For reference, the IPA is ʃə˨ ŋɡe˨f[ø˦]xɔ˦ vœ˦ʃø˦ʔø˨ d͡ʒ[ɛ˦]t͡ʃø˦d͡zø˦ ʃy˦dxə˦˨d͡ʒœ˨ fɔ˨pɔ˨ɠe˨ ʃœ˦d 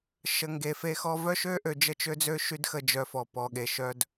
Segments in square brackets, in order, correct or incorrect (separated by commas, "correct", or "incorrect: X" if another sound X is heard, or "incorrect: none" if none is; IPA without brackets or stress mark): incorrect: e˦, incorrect: ə˦